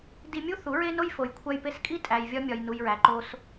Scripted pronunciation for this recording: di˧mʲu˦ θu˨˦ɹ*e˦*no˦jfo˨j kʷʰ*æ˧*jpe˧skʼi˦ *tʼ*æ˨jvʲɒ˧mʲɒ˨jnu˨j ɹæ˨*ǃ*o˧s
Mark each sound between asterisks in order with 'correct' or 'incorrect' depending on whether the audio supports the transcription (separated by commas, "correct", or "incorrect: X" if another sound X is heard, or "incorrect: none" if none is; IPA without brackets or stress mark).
correct, correct, correct, correct